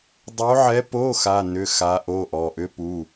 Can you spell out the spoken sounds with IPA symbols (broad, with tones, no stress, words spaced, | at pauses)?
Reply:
dˤo˧˥ʕɛ˧˥po˧˥˧ xa˧˥˧nʏ˧˥˧xa˧˥ ʔo˧˥˧ʔɔ˩˧˩ ʔʏ˧˥pu˩˧˩